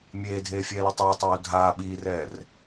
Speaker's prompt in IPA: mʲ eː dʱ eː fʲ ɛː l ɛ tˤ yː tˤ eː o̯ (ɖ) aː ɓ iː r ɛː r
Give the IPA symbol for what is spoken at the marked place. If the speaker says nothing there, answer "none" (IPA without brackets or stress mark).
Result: dʱ